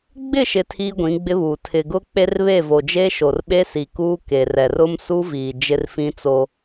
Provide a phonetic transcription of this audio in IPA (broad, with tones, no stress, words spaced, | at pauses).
ɡ͡bɪ˦˨ʃɪ˨ tʰiː˦ɡʷĩ˨˦ɡ͡bɪ˦βuː˨ tʰɪ˨ɡʊ˦k͡pe˦rβe˦˨ vo˨d͡ʒe˦ʃo˨rɓe˦ si˨kuː˦ke˨rɛ˨r ʊ˦msu˦viː˨ d͡ʒɪ˦rfĩ˦t͡so˦